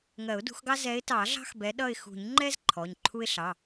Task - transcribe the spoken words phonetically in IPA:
ŋ ɜ˨˩˦ ʊ̯ d ṳ˨˦ x ɡ ɑ˦ z ɛ˨˦ ɪ̯ t ɑ˨˩˦ ɮ ɑ̤˦ x b ɛ˨˦ ɗ ʌ˦˨ ɪ̯ x ṳ˨˩˦ ɲ ŋ͡ǃ ɛ˦ z ǃʰ ɔ˩˧˩ ɲ ǃʰ u˦ ɪ̯ ɬ ɑ˩˧˩

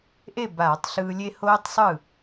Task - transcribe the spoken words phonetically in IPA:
ʔ e˥˩ b aː˧˩˧ tˤ ɬ ɯː˧ lʲ e˦˥ h oː˦˥ tˤ sˤ ɯ˥˩

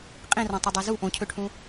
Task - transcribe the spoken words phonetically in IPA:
qʼ ĩ r ɔ̃ tˤ ɵ dˤ o z u ʔ õ cʰ ø ʈʰ ũ

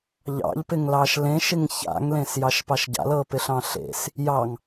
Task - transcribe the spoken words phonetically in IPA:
ʎ ɑ̰ ʎ p ɪ ŋ l ɑ ʃ l ẽ ʃ ɪ ŋ ç a̰ ŋ l ẽ s j ɑ ʃ p ɑ ʃ ɟ a̰ l ɤ p ɪ ɬ ɑ̃ ɬ ḛ s | j ɑ ŋ

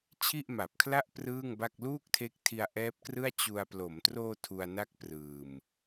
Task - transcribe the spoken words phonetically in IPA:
t͡ɕʰ i˥˩ ʔ m a˨˩ p̚ kʰ l a˥˩ ʔ p r ɯː˥˩ ŋ b a˥˩ k̚ l uː˥˩ k̚ tʰ e˦˥ k̚ tʰ i˧ a̯ ʔ ɛː˦˥ p̚ k r ɯ˥˩ a̯ t͡ɕ u˧ a̯ p l o˩˦ m t r oː˧ tʰ u˧ a̯ n a˥˩ k̚ p r ɯː˨˩ m

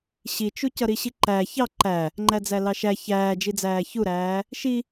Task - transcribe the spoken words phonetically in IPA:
ɕ i t͡ʃ u c ʌ ɾ i ɕ i ǃ æ ç ɑ ǃ æ | ŋ͡ǃ æ d͡z æ l ɑ ʃ æ ç æː d͡ʒ i d͡z æː ç u ɾ æː | ʃ i

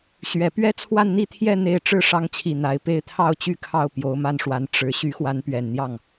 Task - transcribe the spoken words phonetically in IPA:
ɕ ɥ ɛ˨˩ p ɥ ɛ˥ t͡sʰ w a˥˧ n n̪ i˥˧ t̪ʰ j ɛ˥˧ n̪ e˥˧ ɪ̯ ʈ͡ʂ ɻ̩˥˩ ʂ ɑ˧˥ ŋ t͡ɕʰ i˨˩ n̪ a˧˥ ɪ̯ p e˥ ɪ̯ t̪ʰ ɑ˥˧ ʊ̯ t͡ɕ y˥˧ kʰ ɑ˥˩ ʊ̯ p j o˧˥ ʊ̯ m a˥˩ n ʂ w a˧˥ n ʈ͡ʂ ɻ̩˧˥ ɕ y˧˥ x w a˧˥ n p ɥ ɛ˨˩ n n̪ j ɑ˥˩ ŋ

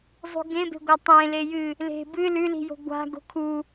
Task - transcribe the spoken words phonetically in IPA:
zˤ ṳ ɡ ẽ b e̤ ɡʷ ɐ tˤ ẽ l e j ɨ | l e̤ b ɨ l ʉ l i̤ j o̤ ɡʷ a̤ ɡ o̤ kʰ u

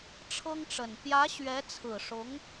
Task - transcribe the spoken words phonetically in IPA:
ʈ͡ʂʰ ɤ˥ ŋ ʈ͡ʂ ə˨˩ n p j ä˧˥ ɕ ɥ ɛ˧˥ t͡sʰ ɹ̩˨˩ ʂ ʊ˧˥ ŋ

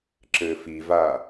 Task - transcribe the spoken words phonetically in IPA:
ǁ ɘː f i v aː

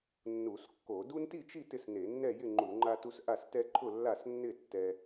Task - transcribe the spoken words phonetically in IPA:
nː u˧˩˧ s kː o˧˩˧ d u˦ n t i˥˨ t͡ʃ i˥˨ t ɪ˥˨ s n e˧˩˧ nː ɛ˥˨ j ɪ˥˨ ŋ͡ǃ u˧˩˧ ŋ͡ǃ a˦ t u˦ s ʔ a˥˨ s t ɛ˦ ǃʰ ʊ˥˨ lː a˥˨ s nː ɪ˥˨ tː ɛ˦

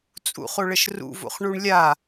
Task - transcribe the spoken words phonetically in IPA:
t͡sʼ ṵ χ o ɭ ə ʃ r ṵ v o̰ χ ɳ u ɳ lʲ a

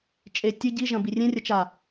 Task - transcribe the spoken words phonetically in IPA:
t͡ʃʼ e tʲ ɨ ɟ i ʒ ɐ̃ b i rʲ ẽ rʲ ɐ t͡ʃ a

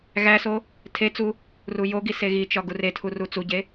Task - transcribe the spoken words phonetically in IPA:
ɣ æ s o | tʰ e t͡s u | r u j o ɡ i s e ɣ i t͡ʃ ɒ ɡ u r e tʰ u r u t͡s u ɟ e

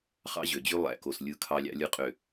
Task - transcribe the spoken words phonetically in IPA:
χ ɑ̰˦ ʑ ø˨ d͡ʑ y˦ lˠ æ̰˨ k o˨ s lʲ ɯ˦˨ kʰ ɑ˦ lʲ ɑ̰˦ lʲ ɯ˦ qʼ ø˨

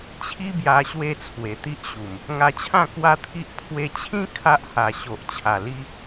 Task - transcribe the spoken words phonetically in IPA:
t͡ɕʰ i˦ b j a˧ ɕ w e˥˧ t͡sʰ w e˨˩ t̪ i˦ ʔ ɕ u˨˩ m | ŋ a˧ t͡ɕʰ ã˥˧ k w a˦ t̪ʰ i˦ ʔ pʰ w e˧ t͡ɕʰ ĩ˦ kʰ a˦ ʔ h a˨˩ ɕ o˨ ʔ t͡ɕʰ a˨˩ l i˧

